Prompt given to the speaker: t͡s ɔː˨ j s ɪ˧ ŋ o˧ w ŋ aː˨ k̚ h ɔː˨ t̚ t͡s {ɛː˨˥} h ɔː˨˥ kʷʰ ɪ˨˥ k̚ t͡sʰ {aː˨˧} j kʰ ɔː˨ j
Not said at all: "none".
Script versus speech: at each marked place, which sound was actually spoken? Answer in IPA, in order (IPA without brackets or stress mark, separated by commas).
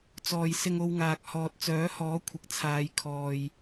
œː˨˥, aː˨˧